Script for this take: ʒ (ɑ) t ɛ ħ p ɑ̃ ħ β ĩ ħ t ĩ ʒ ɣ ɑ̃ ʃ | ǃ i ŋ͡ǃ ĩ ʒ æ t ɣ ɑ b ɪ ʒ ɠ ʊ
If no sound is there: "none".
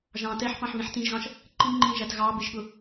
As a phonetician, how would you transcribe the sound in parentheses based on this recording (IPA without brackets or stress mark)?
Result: ɑ̃